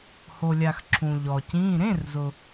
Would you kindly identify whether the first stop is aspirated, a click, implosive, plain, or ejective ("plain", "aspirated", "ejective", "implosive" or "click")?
click